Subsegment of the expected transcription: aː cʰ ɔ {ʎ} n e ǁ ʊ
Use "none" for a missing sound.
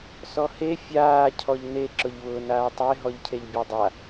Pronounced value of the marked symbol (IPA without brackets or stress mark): ʎ